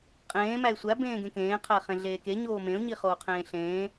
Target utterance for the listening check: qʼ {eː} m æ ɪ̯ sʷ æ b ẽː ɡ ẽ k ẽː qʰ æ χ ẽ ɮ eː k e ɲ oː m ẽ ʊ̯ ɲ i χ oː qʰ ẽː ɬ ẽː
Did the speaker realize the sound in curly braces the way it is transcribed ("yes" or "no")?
no